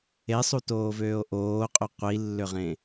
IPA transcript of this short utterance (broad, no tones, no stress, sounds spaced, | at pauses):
e sˤ u t oː v øː o̯ ʔ oː qʼ ø qʷ i lː ø ʁ ẽ